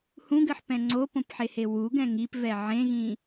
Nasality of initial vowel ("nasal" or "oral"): nasal